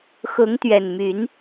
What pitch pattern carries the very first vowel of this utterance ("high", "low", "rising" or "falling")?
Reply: rising